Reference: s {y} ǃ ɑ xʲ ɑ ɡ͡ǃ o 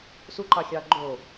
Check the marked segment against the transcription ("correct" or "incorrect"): incorrect